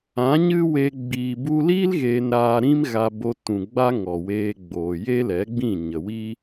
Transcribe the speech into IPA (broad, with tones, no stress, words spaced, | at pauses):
ã˨˦ ɲɨ˦we˧ ɡ͡biː˨bu˧liː˦l ɣeː˧nɾaː˧ɾĩ˦mɣa˧ bo˧tũ˨ɡ͡ba˦ ŋɔ˨weː˧ɡ͡boː˨ je˦lɛ˨˦ɡ͡bĩ˦˨ ɲə˨wi˦